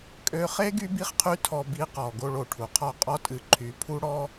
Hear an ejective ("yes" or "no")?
yes